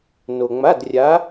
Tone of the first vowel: low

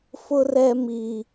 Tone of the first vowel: high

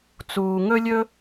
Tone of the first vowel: low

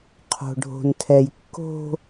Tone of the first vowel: low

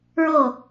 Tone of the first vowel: falling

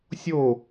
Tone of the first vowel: falling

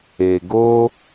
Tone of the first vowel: low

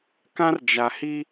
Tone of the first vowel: high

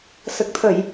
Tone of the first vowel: low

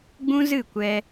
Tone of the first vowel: high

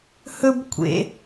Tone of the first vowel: high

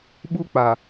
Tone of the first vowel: high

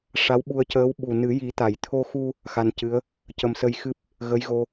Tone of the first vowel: rising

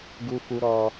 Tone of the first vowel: high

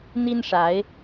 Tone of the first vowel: high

